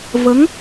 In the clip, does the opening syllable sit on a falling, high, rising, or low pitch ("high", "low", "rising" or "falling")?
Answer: rising